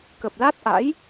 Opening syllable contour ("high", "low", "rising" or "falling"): low